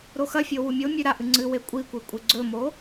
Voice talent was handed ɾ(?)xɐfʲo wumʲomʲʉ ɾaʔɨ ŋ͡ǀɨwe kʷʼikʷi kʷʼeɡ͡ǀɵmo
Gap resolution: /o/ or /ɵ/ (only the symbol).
o